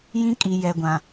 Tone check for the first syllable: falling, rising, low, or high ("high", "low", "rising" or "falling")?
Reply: high